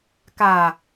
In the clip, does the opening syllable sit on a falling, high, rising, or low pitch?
low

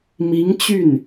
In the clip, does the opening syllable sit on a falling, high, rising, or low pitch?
rising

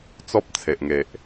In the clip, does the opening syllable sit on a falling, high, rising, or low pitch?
high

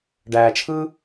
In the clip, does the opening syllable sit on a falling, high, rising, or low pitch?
low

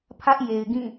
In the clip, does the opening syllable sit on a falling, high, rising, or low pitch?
high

